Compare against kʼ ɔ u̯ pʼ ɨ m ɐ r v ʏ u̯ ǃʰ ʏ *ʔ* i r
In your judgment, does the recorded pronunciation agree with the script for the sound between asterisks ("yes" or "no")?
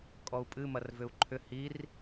no